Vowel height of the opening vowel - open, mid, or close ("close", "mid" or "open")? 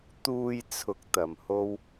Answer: close